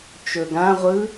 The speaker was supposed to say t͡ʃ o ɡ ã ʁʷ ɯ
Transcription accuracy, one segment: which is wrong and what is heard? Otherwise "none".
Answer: o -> ɵ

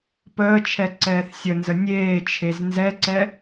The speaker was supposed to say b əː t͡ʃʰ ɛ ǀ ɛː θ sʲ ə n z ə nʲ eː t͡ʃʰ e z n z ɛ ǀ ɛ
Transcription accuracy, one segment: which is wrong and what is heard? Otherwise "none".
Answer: b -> p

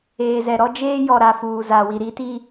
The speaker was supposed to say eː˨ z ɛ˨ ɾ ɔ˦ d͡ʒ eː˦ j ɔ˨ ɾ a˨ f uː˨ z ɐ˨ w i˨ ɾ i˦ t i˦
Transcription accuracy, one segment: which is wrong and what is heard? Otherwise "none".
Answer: ɐ˨ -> a˨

